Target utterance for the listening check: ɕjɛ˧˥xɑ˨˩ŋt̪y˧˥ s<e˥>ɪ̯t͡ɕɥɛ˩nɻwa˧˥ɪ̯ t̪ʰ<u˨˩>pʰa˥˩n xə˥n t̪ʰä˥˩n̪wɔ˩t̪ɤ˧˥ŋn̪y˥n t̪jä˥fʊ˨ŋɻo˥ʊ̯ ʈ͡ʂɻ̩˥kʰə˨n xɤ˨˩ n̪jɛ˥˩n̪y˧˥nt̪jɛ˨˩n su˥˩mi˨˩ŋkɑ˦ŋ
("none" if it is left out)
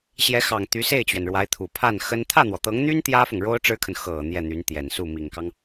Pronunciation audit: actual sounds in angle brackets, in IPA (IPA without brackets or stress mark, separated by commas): e˥˩, u˨˩